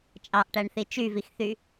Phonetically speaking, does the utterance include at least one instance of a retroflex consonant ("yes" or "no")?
yes